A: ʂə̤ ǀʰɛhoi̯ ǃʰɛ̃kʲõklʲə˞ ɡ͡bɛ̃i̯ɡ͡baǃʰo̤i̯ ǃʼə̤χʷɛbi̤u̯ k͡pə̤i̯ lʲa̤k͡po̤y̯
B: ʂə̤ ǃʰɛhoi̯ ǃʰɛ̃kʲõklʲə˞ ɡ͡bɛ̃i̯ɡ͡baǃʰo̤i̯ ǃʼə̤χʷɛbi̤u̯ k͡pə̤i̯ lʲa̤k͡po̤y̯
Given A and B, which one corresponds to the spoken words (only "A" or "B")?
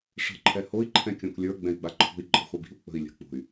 B